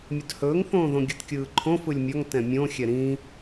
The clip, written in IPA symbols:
mʲɵdhɵːŋθõːðõ ɡʲɯtkʲɯːǃʰõ fɯlʲmʲɒŋ tɛ̃mʲõxʲɛ ɾĩ

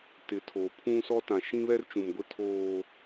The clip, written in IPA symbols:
tɪ˨˦tʰoː˨ pʰũ˦sɔ˦ tã˨ ʃĩ˦βɛ˦rt͡ʃũ˨mɡʷɪ˦ tʰoː˦

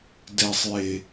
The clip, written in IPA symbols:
dɛ˨sˤje˨

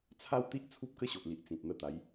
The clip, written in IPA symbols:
t͡sʰa˦wt̪i˦ʔ t͡sʰu˦p̚kə˥˧ɕo˨ʔli˨ʔ t͡sĩ˨t̚n̪ə˧t̪a˨˦j

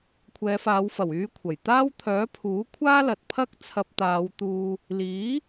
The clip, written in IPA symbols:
kʷʰɛː˨˧faː˨˧wfɐ˨˩wyː˧ kʷʰɐ˨˩j t̪aː˥wt̪ʰœː˨˥ pʰuː˨˥ kʷʰaː˥lɐ˨t̚pʰɐ˥k̚ t͡sʰɐ˧p̚t̪aː˨˧wt̪uː˧ | liː˨˥

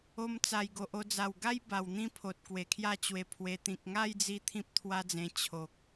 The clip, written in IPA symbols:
o˧m t͡sa˨˩jɡo˨ʔo˧d͡za˨˩w ɡa˦j ba˨˩w n̪ĩ˦pʰo˨t̚ kwe˨˩kʰja˥˧t͡ɕwe˧pʰwe˧ t̪ĩ˨k̚ŋa˥˧jd͡zi˧ t̪ʰĩ˦p̚t̪ʰwa˦d͡zẽ˧ t͡ɕʰo˨k̚

